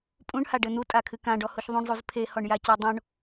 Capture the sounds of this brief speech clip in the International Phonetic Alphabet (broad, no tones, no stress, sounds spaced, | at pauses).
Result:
pʼ ũ ɳ h a ɖ ɘ n̪ u tʼ a kʰ ɨ k ã ɖ ɔ h u ç ðˤ ũ ɳ zˤ u z pʰ e h ɔ ɳ j a c ɜ dˤ õ ɳ